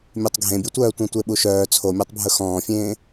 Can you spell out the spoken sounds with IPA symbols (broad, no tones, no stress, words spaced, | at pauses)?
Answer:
mʲœtˤɡʱẽbʲutʷœː tʷœ̃tʷeɓuʃœː t͡sʰomʲætˤbʱɵ xɔ̃ːfʲẽː